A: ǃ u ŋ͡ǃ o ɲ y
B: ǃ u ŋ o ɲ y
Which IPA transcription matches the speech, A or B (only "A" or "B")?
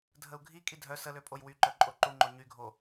A